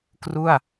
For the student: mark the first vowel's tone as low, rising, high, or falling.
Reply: falling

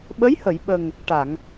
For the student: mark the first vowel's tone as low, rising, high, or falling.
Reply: rising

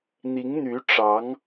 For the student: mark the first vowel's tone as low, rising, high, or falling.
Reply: rising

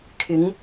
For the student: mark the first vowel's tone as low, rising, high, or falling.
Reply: rising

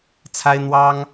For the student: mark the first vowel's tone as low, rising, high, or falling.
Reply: high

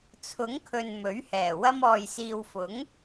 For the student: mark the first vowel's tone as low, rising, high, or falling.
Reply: rising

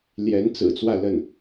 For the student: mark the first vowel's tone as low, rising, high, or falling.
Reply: rising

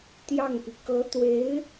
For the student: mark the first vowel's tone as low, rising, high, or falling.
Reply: falling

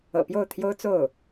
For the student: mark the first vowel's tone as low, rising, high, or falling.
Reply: low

